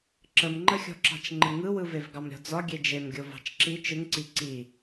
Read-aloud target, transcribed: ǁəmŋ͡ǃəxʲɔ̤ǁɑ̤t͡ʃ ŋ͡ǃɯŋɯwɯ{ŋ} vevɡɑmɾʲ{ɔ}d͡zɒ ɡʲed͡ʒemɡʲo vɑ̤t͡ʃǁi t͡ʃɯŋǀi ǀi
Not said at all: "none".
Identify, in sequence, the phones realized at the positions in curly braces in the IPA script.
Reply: none, ɔ̤

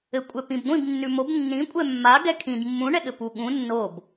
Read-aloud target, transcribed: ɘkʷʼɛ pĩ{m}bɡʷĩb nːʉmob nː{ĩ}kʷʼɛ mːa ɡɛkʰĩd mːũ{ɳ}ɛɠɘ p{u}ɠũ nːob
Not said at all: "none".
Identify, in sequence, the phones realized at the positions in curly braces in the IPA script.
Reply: none, ĩ, ɳ, u

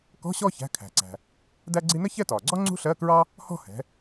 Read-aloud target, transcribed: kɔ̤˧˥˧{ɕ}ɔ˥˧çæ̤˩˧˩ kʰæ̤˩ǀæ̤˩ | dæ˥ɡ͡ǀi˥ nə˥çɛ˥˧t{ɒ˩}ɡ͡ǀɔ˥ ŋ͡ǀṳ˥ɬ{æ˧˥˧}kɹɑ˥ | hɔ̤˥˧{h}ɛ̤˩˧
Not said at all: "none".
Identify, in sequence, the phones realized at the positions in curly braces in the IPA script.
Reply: ɕ, ɒː˩, ɜ˧˥˧, h

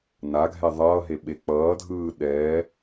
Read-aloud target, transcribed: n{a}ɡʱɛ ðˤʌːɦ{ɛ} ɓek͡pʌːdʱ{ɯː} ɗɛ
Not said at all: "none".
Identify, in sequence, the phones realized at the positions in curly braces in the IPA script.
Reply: a, e, ɯː

